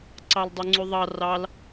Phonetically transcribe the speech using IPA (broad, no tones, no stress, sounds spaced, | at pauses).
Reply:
ǀ ɑ l dˤ u ŋ͡ǀ ʉ ðˤ ɑ r ɑ l